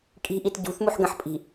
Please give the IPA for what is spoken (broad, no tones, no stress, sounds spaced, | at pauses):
kʼ i̤ ʔ i t ɟ ṳ θ m u ħ ɡ ə̃ ħ pʼ i̤